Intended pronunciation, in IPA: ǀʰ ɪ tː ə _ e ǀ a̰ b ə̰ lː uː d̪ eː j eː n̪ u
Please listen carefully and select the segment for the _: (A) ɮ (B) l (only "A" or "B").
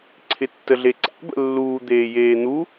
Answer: A